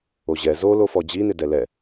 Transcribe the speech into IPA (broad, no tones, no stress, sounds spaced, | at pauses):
o ʑ ɛ z o l o f ɔ d͡ʑ i n ɪ d ɛ l ɛ